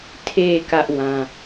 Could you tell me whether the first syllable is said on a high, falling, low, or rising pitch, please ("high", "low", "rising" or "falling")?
low